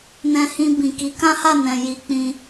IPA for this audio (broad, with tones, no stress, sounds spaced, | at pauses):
n ɛ̃˧ h ĩ˧ b ĩ˨ k i˨˦ k ã˦ h a˦˨ n ɛ̃˨ j i˧ k͡p ĩ˧